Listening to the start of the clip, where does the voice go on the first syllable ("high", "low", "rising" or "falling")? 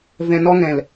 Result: low